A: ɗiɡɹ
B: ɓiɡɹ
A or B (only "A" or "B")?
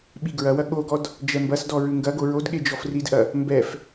B